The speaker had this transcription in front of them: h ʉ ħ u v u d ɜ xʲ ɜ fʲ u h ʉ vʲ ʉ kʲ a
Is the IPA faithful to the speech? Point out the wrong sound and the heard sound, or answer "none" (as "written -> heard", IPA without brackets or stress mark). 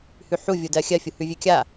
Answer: v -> vʲ